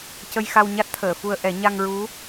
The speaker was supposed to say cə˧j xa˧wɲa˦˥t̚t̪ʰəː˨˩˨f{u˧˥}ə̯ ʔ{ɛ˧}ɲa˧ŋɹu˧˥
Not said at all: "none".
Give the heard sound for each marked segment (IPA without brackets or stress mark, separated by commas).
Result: u˧, ɛ˨˩˦